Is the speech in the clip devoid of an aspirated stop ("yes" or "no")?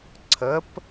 no